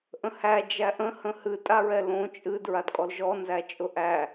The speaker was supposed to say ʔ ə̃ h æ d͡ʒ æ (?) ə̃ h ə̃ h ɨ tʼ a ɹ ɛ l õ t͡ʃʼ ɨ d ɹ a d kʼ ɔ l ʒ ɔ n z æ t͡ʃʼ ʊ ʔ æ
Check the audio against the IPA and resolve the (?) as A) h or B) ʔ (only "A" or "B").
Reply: B